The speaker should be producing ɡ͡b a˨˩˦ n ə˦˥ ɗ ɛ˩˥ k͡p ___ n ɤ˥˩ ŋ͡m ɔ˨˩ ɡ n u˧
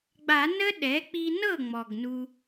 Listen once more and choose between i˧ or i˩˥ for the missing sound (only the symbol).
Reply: i˧